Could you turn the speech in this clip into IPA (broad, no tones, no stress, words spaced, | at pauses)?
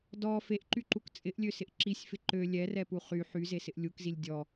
dɔ feʔǃyǃuk t͡sʼɪʔlʲøsɪʔ ǁisʲfɪ ǃø lʲɛrɛpu χy ħyzesɪʔ lʲukzilʲ dʲɔ